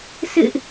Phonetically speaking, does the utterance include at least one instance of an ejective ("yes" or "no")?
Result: no